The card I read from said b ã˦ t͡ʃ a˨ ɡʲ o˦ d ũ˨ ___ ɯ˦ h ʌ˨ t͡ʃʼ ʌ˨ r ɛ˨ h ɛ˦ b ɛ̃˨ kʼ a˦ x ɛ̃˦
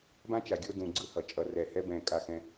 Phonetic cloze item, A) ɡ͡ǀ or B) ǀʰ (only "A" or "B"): A